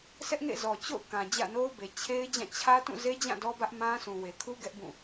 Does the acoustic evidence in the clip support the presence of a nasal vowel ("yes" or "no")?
yes